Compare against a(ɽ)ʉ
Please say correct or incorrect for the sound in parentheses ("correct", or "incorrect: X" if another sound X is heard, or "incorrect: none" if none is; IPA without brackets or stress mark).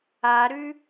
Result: incorrect: ɾ